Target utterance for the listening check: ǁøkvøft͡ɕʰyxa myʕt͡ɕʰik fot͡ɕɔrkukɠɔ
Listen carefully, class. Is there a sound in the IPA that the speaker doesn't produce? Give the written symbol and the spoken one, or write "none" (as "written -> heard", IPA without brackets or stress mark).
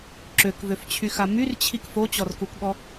ʕ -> r